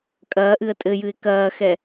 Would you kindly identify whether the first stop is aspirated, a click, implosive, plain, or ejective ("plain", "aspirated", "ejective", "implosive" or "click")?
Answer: ejective